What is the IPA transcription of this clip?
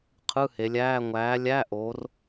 qʰ ɯ˧˥˧ h e˩˧ lʲ æː˧˥˧ ŋʷ æː˨˥ lʲ æ˧˥˧ ʔ oː˩˧ r

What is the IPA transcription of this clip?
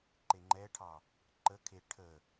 ǃ e ŋ͡ǃ ɛ ʈʰ ɑ | ǃ ə kʰ e ʈʰ ə

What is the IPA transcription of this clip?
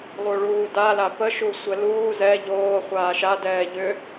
lˠ u ɭ uː d a l a p ə ʃ u sʷ ɛ l uː z ɛ ʎ oː χʷ aː ʃ a d ɛː ʎ ʏ

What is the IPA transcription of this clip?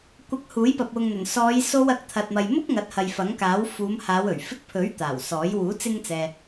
kʷ ɐ˧ k̚ h uː˨˥ j p ɐ˨ p̚ w ʊ˨ ŋ n̪ ɵ˨˩ n s ɔː˨˧ j s o˧ w ɐ˨˥ k̚ t̪ʰ ɐ˨ t̚ m ɐ˨ j m ʊ˥ k̚ ŋ ɐ˨˥ t̚ h ɐ˨ j f ɐ˨˥ ŋ k aː˨˥ w f uː˨˧ m h aː˨˧ w ɵ˨˩ ɥ f ɪ˧ k̚ pʰ ɵ˨˥ ɥ t̪ aː˨˩ w s ɔː˨˥ j w uː˨˥ t͡s ɪ˥ ŋ t͡s ɛː˧

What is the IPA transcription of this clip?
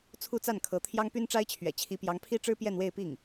t͡sʰ u˥˧ t͡s a˥˩ n kʰ ɤ˧˥ t̪ʰ j ɑ˥ ŋ p y˥ n ʈ͡ʂ a˥ ɪ̯ t͡ɕʰ ɥ ɛ̰˨˩ t͡ɕʰ i˧˥ p j ɑ˧˥ ŋ pʰ i˥ ʈ͡ʂ ɻ̩˥ p j ɛ˥˧ n w e˥˧ ɪ̯ p i˥˩ ŋ

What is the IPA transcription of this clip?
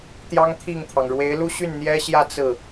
t̪ j ɑ˥ ŋ t̪ʰ i˥˩ ŋ t̪ʰ ɑ˩ ŋ ɻ w e˧˥ ɪ̯ l u˥ ɕ y˥˩ n n̪ j ɛ˥ ɕ j ä˥˧ t͡s ɹ̩˥˩

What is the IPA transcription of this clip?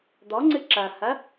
d̪ ɔ ŋ͡ǀ ɨ ǁ ɐ h ɐ

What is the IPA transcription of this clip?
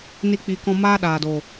n i˦ k͡p i˧ k ɔ̃˦ m aː˦ ɗ aː˨ d oː˨

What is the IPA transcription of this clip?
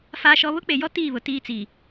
f aː˦ ʃ ɔ˦ β ʊ˦ k͡p e˨ j ɔ˦ t iː˦˨ β ʊ˨ t iː˦ t͡s iː˨

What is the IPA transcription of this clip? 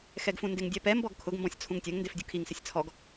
x ɛ ɡ f ũ n d ɪ ŋ dʲ ɛ p ɛ m b ɔ ɡ kʰ ʊ ɡ m b ɔ̃ sʲ t͡sʰ ũ ŋ tʲ ɛ ŋ n d e f dʲ u kʰ i ŋ s ɪ sʲ t͡sʰ ɔ ɡ

